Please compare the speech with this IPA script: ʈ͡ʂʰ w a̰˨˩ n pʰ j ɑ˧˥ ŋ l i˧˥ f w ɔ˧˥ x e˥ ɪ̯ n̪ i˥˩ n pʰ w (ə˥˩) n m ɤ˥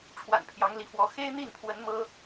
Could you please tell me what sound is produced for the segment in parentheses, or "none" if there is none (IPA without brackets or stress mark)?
ə˧˥